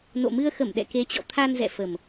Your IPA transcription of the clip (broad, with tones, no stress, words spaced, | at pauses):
no̰˧˨mɨ˧ə̯ xə˧˩mɗɛ̰˧˨ ke˨˦t͡ɕɔ̰˧˨ t̪ʰa˧nzɛ̰˧˨fə˨˩m